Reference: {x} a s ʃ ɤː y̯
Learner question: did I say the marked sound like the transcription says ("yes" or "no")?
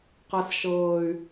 no